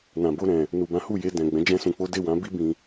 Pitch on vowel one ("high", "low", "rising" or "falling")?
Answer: low